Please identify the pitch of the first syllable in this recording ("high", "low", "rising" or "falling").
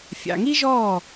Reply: low